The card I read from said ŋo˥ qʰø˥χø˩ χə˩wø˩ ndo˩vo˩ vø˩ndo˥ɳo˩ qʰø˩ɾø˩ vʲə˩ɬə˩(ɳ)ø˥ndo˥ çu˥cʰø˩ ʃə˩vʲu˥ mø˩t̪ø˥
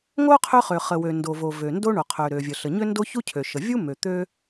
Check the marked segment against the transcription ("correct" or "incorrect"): incorrect